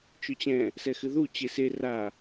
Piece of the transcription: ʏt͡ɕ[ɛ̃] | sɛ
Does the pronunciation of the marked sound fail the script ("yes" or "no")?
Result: no